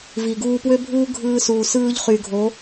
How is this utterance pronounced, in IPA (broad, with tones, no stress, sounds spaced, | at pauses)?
v i˨ ɡ uː˧ p w ø˦ bʱ uː˦ ɡʱ ɯː˧ s uː˨ s ɯː˧ ʎ χ y˨ ɡʱ o˨˦